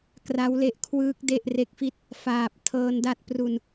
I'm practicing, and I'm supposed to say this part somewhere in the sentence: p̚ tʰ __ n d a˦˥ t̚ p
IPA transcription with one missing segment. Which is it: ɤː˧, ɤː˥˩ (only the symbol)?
ɤː˧